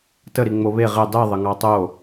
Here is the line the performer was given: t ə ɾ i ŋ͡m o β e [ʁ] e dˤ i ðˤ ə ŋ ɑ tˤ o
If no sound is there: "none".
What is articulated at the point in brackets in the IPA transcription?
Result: ʁ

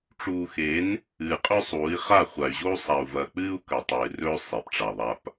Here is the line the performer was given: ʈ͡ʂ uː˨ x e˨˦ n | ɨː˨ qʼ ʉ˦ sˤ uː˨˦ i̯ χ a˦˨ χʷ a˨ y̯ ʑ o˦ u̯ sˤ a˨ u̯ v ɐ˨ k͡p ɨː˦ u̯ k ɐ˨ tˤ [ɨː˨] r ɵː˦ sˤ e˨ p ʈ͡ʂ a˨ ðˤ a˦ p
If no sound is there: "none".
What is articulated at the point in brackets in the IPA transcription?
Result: ɨː˨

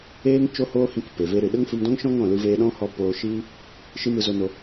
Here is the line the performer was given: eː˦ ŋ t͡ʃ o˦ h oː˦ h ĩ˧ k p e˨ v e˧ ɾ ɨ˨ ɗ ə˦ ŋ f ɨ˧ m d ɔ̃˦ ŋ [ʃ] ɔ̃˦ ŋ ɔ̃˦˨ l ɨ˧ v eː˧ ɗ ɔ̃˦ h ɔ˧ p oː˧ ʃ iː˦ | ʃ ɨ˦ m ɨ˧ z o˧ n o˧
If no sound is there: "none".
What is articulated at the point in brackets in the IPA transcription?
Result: ʃ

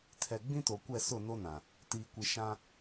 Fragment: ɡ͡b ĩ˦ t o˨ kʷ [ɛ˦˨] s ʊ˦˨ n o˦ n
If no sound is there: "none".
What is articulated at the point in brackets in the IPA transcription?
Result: ɛ˦˨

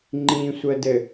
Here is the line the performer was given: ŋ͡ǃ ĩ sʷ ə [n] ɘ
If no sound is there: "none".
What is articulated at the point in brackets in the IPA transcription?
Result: d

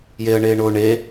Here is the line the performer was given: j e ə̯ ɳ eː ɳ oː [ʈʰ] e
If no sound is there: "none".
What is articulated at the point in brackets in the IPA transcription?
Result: ɳ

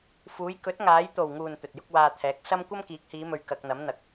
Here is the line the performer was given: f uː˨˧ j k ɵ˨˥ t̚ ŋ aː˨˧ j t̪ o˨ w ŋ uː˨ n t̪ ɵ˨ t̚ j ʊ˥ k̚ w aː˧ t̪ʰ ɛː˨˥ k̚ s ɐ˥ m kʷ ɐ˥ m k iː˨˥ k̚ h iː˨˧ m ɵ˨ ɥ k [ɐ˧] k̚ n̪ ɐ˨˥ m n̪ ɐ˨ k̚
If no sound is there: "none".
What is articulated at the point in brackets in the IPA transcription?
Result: ɐ˧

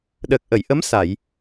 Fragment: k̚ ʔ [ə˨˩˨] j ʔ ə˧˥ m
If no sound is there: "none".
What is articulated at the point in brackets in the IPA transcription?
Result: ə˨˩˨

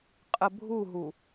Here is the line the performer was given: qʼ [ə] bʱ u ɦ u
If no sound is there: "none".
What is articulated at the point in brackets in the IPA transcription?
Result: ə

